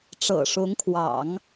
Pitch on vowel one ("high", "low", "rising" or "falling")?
low